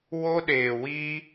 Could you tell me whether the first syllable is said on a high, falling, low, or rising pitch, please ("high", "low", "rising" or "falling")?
high